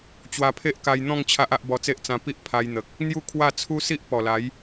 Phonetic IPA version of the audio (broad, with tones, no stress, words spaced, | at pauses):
t͡ɕwa˧pʰe˦ʔka˧jn̪ɔ̃˥˧ŋ t͡ɕʰa˦ʔa˦ʔ bɔ˧t͡se˦ʔ t͡sã˧pi˦ʔ pʰa˧jn̪ə˨k̚ | n̪ju˥˧kʰwa˥˧ t͡sʰu˦si˦ʔpɔ˨˩la˨˦j